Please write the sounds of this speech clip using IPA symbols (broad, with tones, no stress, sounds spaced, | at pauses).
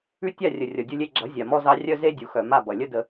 ʉ˦ tʲ a˦˨ rʲ ə˨ rʲ ʌ˨ dʲ u˧ lʲ e˧ ɡ͡ǁ ʌ˨˦ zʲ a˨ m ɔ˦ z ɑ˦ rʲ œ˦ z e˦ dʲ u˨ x œ˨ m a˦˨ b ʌ˨ lʲ ə˦ d ə˧